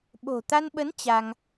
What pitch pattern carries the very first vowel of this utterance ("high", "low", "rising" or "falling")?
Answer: low